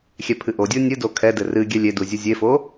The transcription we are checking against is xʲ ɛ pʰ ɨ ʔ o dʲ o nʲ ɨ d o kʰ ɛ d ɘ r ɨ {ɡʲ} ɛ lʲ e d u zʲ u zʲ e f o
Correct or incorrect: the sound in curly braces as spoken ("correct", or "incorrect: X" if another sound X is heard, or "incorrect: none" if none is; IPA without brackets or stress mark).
correct